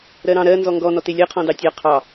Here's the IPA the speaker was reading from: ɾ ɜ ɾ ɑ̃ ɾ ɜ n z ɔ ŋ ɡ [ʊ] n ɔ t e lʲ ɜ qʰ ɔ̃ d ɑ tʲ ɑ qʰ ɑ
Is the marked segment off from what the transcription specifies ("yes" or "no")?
yes